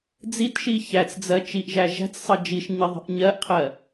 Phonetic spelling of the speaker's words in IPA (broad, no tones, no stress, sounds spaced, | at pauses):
d͡z i t ʃ i ç æ t͡s d͡z ɜ t͡ʃ i ʔ ʒ æ ʒ æ̤ t͡s sˤ ɜ d͡ʒ i ʃ ɲ i ðˤ i̤ ʔ ɲ ɜ ʔ qʰ ɜ